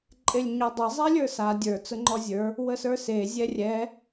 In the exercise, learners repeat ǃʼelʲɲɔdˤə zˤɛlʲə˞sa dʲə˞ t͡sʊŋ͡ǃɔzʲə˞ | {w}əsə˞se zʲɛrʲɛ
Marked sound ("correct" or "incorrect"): correct